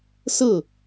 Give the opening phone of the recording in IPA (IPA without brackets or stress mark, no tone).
s